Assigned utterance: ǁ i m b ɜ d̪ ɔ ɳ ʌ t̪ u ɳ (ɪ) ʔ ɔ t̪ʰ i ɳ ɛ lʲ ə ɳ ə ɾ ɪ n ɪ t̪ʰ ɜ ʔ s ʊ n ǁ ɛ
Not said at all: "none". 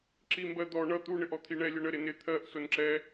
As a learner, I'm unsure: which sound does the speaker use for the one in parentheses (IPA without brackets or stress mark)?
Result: ɪ